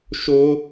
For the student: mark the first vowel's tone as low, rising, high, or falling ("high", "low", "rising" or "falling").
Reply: high